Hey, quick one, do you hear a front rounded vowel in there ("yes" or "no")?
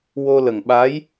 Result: no